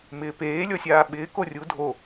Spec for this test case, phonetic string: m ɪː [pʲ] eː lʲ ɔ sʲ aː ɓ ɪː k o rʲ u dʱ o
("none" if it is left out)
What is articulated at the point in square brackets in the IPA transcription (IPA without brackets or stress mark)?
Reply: p